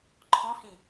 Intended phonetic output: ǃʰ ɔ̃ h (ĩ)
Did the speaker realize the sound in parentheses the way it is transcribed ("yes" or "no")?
yes